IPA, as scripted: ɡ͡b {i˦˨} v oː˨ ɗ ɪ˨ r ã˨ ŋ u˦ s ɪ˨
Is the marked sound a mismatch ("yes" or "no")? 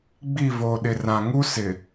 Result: no